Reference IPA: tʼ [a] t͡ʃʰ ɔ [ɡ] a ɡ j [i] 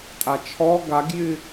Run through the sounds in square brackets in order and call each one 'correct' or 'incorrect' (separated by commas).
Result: correct, correct, incorrect